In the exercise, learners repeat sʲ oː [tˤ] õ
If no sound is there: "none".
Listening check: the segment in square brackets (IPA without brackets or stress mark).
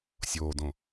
d